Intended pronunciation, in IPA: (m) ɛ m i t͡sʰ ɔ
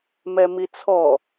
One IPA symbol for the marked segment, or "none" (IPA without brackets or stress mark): m